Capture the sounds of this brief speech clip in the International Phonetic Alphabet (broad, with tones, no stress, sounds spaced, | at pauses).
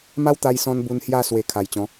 m a˦ w t̪ a˧ j s ɔ̃˧ n b u˧ n h j a˥˧ s w e˨˩ kʰ a˨˩ j t͡ɕ ɔ̃˨˦